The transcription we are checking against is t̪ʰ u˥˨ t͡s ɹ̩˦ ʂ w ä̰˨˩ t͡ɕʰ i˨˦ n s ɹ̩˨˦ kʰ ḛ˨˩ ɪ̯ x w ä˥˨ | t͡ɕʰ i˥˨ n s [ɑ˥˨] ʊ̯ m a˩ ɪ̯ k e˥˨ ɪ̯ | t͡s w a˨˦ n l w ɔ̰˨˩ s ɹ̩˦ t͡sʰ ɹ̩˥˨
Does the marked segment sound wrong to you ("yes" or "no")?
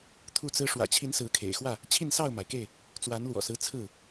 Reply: no